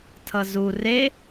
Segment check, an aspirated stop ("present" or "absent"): present